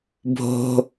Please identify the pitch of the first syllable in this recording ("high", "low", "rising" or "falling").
low